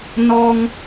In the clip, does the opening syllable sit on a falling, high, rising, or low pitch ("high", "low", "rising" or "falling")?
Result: high